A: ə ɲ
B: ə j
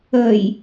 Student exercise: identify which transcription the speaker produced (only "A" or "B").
B